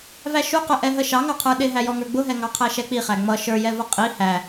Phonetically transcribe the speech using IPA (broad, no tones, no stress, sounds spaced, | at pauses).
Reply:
v æ ʃ u q ə ʔ ɛ ɦ ə ʃ ɑ ŋ ɑ qʰ ə˞ ɗ ɪ ɦ æ j ɔ ŋ ə˞ ɡ͡b ʊ ɦ ɛ ŋ ɑ qʰ æ ʃ ɛ k͡p i χ æ ŋ͡m ʌ ʃ ə˞ j ɛ v ʌ qʼ i h æ